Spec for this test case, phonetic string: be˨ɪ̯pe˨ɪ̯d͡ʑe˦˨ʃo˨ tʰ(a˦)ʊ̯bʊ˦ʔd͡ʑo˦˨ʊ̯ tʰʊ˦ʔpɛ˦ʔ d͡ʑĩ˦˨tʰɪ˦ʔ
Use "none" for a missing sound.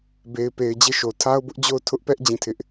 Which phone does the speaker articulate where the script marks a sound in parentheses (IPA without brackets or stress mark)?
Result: a˦